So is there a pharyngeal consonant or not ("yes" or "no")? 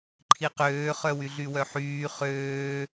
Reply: yes